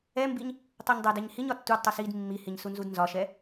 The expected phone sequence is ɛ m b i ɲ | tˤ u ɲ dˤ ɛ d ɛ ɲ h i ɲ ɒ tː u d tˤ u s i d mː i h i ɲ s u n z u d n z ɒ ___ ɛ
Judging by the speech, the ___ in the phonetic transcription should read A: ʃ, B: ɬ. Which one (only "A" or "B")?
A